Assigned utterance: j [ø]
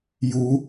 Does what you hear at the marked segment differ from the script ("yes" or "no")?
yes